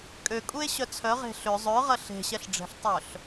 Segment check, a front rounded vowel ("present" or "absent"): present